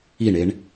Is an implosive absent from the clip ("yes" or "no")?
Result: yes